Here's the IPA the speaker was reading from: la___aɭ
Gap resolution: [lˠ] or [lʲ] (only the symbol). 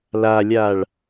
lʲ